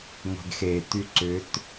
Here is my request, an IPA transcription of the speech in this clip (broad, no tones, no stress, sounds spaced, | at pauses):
ŋʷ e̤ ɡ x e t y ǀ ʏ t